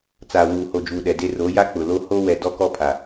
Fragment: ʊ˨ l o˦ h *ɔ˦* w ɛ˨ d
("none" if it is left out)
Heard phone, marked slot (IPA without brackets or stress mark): o˦